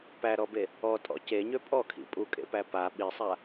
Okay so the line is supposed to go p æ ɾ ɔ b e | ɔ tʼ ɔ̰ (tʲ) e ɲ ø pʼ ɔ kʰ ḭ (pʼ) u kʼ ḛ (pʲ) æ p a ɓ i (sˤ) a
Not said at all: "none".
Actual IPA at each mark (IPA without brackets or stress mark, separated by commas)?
c, pʼ, p, sˤ